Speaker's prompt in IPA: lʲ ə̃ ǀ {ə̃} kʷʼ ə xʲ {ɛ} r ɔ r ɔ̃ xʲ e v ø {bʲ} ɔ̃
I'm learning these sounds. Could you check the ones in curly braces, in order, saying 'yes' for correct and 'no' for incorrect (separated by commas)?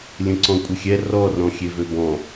no, yes, no